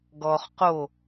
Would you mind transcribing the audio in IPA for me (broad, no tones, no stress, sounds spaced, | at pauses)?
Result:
ɡ ɔ χ q o